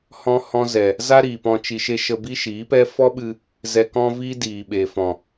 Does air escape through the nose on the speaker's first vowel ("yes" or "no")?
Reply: yes